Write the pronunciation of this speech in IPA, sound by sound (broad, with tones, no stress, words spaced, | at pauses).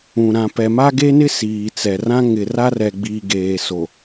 ũ˨ ɾã˨pɛ˨ma˦ ɡe˦nɪ˦ siː˨t͡sɛ˨rã˦ ŋɪ˨ra˦rɛ˨ɡ͡biː˨ ɡeː˨so˨